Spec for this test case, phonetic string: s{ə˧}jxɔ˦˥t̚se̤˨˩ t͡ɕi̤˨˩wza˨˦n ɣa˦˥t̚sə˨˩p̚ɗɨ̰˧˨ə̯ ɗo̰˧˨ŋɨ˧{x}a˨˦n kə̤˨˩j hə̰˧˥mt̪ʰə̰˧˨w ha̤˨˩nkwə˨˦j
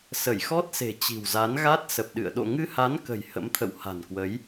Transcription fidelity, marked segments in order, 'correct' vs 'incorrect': incorrect: ə˧˩, incorrect: h

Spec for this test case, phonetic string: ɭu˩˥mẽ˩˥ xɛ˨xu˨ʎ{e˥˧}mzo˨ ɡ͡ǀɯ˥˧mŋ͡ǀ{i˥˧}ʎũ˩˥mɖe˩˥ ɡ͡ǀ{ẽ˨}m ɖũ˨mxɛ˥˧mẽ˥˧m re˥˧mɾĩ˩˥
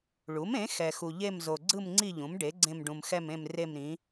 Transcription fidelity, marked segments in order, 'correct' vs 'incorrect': correct, correct, incorrect: ẽ˥˧

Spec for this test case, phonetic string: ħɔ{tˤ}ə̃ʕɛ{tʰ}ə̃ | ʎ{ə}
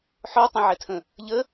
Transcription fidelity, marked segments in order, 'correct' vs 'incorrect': correct, correct, correct

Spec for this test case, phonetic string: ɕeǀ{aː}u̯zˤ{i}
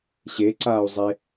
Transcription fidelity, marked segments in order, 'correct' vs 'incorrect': correct, incorrect: e

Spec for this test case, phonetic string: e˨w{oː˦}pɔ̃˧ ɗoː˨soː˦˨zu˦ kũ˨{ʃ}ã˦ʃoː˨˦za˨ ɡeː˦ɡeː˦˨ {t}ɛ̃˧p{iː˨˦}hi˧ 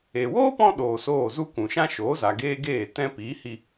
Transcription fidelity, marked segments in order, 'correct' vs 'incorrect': correct, correct, correct, correct

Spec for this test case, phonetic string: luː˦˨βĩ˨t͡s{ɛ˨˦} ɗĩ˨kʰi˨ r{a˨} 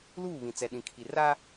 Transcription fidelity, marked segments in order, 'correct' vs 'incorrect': incorrect: ɛ˨, incorrect: a˦

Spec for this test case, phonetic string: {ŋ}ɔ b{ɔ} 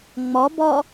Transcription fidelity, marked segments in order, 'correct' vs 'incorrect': incorrect: ŋ͡m, correct

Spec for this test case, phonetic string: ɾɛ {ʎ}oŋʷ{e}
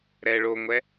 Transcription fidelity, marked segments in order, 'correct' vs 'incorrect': incorrect: ɭ, incorrect: ɛ

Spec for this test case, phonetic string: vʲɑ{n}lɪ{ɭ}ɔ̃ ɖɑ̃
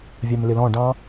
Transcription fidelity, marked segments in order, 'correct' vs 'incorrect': incorrect: m, incorrect: l

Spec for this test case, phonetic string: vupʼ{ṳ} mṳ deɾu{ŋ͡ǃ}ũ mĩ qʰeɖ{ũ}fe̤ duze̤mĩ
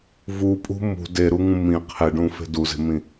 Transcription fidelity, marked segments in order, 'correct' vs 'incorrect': correct, incorrect: ŋ, correct

